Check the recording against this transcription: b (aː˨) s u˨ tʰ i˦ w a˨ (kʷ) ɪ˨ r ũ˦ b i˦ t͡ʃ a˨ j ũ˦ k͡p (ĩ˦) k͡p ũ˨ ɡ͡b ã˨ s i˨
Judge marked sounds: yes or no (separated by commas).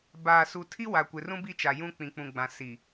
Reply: yes, yes, no